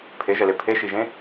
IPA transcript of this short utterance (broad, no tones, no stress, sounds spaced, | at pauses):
pʰ e ʒ ɛ l e pʰ e ʃ i ʒ ẽ